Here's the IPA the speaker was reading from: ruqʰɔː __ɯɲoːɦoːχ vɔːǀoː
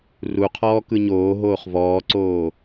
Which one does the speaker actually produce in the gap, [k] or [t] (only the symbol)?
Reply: k